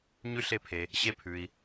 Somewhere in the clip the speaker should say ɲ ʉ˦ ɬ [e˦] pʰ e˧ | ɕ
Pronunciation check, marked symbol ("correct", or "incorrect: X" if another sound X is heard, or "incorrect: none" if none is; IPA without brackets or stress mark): correct